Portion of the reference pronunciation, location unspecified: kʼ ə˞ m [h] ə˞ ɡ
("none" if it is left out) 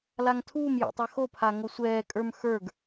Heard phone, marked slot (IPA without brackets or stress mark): x